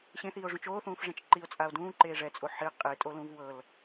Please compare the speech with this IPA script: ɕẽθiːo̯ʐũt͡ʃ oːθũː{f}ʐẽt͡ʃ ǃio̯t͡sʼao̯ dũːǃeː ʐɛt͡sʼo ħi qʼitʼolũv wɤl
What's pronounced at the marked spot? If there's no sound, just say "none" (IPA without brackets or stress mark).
f